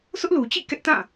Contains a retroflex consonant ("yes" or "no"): no